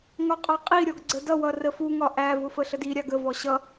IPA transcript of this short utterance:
ŋ ɒ qʼ ɑ qʼ i ɾʲ ɔ ɡ ɡ͡ǀ ə d ʌ w ʌ r ə f u ŋ ɒ ʔ æ v ʊ f ə ɬ ə d i ɾʲ ɑ ɡ ə v ɔ ɕ ʌ

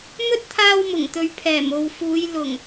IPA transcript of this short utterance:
m ɵ˥ t̚ t̪ʰ aː˧ w m ʊ˨˩ ŋ t̪ ɵ˨ ɥ pʰ ɛː˨˩ m o˨ w f uː˨˧ j l ʊ˨˩ ŋ

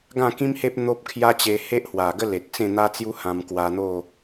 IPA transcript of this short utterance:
ɡ ã˥˧ k ĩ˦ m h e˦ p̚ n̪ o˦ p̚ kʰ j a˦ t͡ɕ e˧ h e˦ ʔ h w a˨˩ ɡ ə˦ l e˨ t̚ t͡s ẽ˥˧ n̪ a˦ t͡s j u˦ h ã˧ m k w a˧ n̪ o˥˧

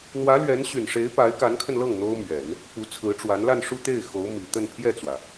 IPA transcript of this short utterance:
n̪ w ä˧˥ l ɥ ɛ˧˥ n ɕ y˨˩ n ʂ e˧˥ ɪ̯ p a˧˥ ɪ̯ k a˧˥ n kʰ ə˧ n l ɤ˥˩ ŋ n̪ o˥ ʊ̯ m ɥ ɛ˨˩˦ n | p u˧˥ t͡sʰ ɹ̩˧˥ ʈ͡ʂ w a˧˥ n l a˥˧ n ʂ u˥˧ t̪ e˥˩ ɪ̯ x o˧˥ ʊ̯ m i˨˩ t̪ ə˥˧ n pʰ j ɛ˥˩ t͡s w ä˩

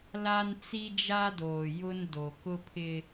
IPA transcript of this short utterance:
l a˦ n t͡s i˦ d͡ʒ a˦ d oː˨ j ʊ˦ n d o˨ k ʊ˦ pʰ ɪ˦

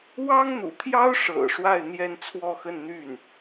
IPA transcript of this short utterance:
w ɑ˥ ŋ n̪ ṵ˨˩ t̪ʰ j ɑ˥ ʊ̯ ʂ ɤ̰˨˩ ʂ w a˥˧ ɪ̯ n̪ j ɛ˥˧ n t͡sʰ w ɔ˥˧ x ə˥˧ n n̪ y˥˩ n

